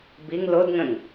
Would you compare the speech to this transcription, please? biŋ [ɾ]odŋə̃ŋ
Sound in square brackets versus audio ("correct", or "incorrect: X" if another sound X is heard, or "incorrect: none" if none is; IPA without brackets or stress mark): incorrect: l